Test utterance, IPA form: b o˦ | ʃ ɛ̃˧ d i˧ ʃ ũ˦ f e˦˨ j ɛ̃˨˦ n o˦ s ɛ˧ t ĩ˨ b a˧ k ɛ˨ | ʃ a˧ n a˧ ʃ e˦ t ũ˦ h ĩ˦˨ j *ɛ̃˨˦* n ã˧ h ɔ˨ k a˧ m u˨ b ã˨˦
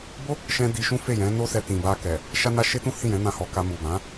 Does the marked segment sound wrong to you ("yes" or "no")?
no